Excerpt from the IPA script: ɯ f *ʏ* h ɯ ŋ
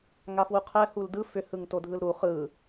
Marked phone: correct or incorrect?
correct